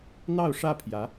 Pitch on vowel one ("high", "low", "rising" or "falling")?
falling